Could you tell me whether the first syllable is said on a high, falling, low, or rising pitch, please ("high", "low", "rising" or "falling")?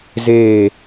falling